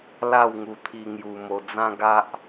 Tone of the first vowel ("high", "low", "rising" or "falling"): falling